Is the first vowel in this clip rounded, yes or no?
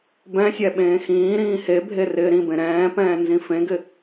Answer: no